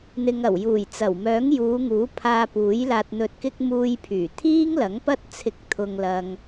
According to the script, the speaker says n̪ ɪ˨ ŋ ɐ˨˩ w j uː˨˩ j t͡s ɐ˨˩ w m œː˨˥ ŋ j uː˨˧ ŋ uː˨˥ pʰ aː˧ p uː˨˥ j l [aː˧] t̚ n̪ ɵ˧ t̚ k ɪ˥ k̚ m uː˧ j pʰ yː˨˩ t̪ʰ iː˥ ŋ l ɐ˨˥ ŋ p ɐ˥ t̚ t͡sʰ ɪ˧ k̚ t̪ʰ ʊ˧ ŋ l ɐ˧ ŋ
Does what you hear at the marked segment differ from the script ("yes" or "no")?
no